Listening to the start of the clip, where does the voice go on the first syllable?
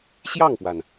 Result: falling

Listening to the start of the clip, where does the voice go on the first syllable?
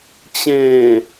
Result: low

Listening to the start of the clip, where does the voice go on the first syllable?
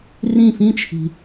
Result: falling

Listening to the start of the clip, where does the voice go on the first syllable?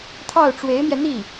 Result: falling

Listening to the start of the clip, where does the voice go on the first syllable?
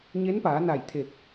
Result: rising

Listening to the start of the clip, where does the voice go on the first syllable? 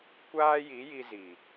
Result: high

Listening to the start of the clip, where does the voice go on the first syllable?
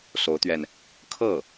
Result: rising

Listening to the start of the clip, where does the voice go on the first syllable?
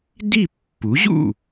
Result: falling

